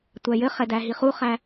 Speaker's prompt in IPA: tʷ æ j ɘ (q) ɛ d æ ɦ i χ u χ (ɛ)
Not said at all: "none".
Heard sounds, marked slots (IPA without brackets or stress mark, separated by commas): χ, æ